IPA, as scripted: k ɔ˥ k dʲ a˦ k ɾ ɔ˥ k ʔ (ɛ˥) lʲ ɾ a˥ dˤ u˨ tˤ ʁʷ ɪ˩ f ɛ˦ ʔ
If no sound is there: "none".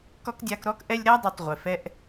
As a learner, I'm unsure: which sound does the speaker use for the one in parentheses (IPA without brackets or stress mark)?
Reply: ɛ˦